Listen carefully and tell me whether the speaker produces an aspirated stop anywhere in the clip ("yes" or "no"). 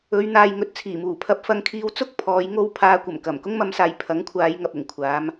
yes